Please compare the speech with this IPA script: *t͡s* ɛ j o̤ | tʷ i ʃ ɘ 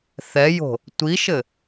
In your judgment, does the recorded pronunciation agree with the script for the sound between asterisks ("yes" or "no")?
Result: no